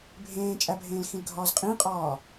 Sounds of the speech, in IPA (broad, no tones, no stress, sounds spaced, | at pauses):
bʱ ẽː t͡ʃʼ æ bʱ ẽː l x ĩ l ɡʱ ɒː z qʼ ĩ qʼ ɒː